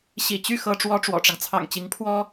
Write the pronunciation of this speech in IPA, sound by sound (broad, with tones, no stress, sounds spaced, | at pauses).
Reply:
ɕ ḭ˨˩ t͡ɕ y˥˩ x ɤ˥ ʈ͡ʂ w ɔ˥ ʈ͡ʂ w ɔ̰˨˩ ʈ͡ʂ ɑ˦ ŋ t͡sʰ ɑ̰˨˩ ŋ t͡ɕ i˧˥ ŋ pʰ w ɔ˥